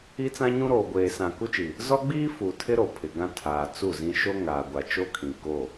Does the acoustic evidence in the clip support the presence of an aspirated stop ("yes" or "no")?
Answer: yes